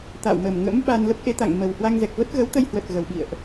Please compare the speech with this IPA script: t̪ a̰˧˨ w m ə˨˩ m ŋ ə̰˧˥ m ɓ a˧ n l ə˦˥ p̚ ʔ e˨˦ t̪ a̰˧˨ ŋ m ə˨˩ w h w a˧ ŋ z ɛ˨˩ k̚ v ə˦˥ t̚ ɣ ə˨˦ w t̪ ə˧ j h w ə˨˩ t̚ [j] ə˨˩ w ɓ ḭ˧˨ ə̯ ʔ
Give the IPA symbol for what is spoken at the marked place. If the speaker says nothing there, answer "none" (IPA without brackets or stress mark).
ɣ